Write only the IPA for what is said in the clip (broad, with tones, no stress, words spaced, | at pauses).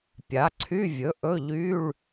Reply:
pʲa˩˥ǀʰy˧˥˧vʲɵ˩˥ ʔɵ˧˥˧ʎy˧˥˧ɭ